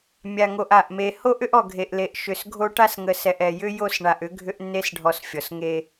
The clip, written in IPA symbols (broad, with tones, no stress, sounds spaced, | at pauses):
mʲ a˨ ŋ o˨ ʔ a˨ ʔ m e˨ h o˦ ʔ ʏ˦ ʔ ɔ˨ ɡʱ e˨ ʔ l e˨ ʔ ʃ ʏ˨ s ɡʱ o˦ ʈ a˦ s ŋ ə˨ s ɛ˨ ʔ ɛ˨ j ʏ˦ j o˦˨ s ɳ a˨ ʔ ʏ˦ ɡʱ ʏ˦ ʔ nː e˦ s ɖʱ ɔ˨ s fʲ ɔ˨ s ŋ e˦